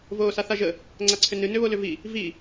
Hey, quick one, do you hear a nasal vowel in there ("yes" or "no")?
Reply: no